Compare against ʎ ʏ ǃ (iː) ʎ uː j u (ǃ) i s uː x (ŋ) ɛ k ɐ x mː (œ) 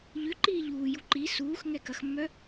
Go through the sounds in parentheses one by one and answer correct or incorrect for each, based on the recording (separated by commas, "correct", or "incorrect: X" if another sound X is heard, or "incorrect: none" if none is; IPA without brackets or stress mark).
correct, correct, correct, correct